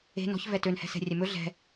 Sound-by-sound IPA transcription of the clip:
e̤ n ɔ̤ ç v ɛ t ø n h ɛ̤ s ɛ̤ rʲ ɛ m ɵ ɮ ɛ̤

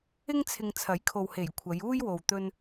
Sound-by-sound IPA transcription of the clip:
ɪ˥ ŋ t͡sʰ ɪ˨ ŋ t͡sʰ ɐ˨˥ j kʰ o˨ w h e˨˩ j kʷʰ ɐ˨˧ j uː˥ j w o˨ w t̪ ɵ˧ n

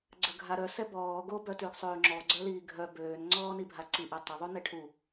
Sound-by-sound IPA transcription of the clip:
ɡ͡ǀ ə ɡʱ a ɾ œ s ɛ b ɔː ɡ o b œ t y ɡ sˤ øː ŋ͡ǁ ɔ ɡ͡ǀ œ l iː ɡʱ œ b øː n ŋ͡ǀ ɔː n i bʱ a ǀ i ʔ ɛ tˤ ə ðˤ u n ɛ ʈʰ u

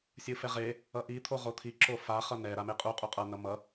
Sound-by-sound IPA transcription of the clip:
sʲ ɯ f ɛ ʁ e | ʌ ʔ i t̪ʰ o ʁ o t̪ʰ i ǁ o f a χ ʌ n ɛ ɾ a m e qʼ u qʼ u qʼ ʌ n ʌ m ʌ

